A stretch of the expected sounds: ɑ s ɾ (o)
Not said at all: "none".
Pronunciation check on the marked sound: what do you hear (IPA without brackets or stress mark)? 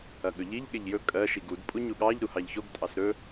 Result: ɵ